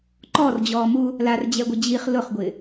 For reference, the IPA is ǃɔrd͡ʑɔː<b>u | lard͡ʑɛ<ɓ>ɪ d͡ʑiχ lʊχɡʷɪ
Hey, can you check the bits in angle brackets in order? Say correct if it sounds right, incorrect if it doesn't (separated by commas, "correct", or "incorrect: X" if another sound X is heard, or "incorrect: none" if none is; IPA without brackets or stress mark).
incorrect: m, incorrect: ɡʷ